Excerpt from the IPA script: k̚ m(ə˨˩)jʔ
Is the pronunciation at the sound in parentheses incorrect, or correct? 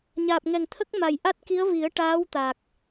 incorrect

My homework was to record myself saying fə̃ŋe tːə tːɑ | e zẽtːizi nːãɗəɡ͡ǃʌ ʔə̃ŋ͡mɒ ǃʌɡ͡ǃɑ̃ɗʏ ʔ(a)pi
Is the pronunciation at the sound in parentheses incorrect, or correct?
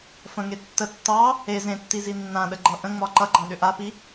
correct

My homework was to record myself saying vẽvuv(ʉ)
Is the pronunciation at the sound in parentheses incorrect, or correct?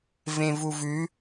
correct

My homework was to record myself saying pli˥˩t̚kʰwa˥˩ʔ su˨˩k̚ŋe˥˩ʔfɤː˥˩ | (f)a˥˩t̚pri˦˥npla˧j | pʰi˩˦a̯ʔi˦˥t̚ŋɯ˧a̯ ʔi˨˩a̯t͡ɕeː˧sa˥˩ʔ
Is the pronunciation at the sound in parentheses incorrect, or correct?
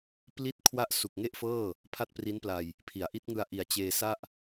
incorrect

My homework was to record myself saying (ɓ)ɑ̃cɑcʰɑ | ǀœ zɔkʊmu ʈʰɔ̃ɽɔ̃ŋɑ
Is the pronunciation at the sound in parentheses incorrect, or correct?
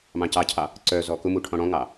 incorrect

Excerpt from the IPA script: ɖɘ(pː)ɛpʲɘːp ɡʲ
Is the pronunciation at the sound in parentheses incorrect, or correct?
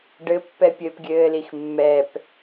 correct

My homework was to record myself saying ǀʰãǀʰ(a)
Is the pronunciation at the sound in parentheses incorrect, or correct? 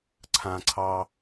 incorrect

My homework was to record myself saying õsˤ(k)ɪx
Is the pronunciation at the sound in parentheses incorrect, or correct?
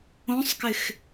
correct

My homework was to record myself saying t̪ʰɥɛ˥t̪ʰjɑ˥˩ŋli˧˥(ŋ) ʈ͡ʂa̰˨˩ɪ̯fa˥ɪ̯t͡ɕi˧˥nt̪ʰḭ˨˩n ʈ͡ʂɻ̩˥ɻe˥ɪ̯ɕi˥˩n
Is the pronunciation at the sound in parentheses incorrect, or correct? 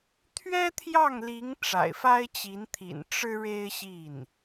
correct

